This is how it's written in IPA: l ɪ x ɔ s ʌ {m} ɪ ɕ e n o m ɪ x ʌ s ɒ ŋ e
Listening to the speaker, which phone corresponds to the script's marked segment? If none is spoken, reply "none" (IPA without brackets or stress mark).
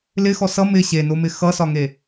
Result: m